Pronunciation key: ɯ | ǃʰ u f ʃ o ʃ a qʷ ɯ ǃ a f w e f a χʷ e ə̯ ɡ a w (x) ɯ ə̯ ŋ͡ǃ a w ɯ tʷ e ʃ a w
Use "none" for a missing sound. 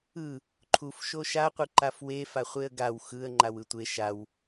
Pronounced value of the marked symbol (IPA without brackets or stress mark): x